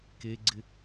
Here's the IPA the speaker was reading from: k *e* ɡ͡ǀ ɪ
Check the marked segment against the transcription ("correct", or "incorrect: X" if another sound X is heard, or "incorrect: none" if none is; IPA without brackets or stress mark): correct